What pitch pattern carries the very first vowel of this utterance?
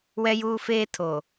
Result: high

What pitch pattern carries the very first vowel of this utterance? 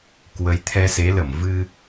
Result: rising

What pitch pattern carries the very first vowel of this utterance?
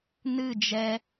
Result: falling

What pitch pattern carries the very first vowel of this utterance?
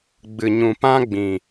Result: low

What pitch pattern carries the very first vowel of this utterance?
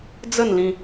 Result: falling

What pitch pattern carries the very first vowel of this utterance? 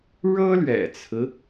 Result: high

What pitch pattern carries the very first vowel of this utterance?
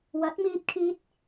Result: rising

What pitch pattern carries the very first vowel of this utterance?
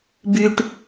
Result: low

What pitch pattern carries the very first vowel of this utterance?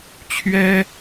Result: high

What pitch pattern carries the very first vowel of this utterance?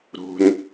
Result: low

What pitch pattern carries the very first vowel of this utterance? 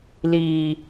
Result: low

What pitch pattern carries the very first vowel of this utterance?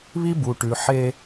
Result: high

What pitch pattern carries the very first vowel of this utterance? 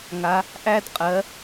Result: rising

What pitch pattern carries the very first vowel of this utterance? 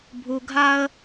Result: high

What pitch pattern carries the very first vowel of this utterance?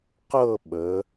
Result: falling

